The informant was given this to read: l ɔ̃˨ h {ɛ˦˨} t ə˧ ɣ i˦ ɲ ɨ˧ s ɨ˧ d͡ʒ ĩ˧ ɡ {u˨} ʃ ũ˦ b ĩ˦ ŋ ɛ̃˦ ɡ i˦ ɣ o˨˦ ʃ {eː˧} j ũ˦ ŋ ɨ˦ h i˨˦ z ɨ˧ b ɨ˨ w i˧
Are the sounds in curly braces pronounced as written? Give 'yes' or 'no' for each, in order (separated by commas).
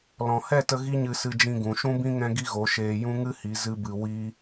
yes, no, yes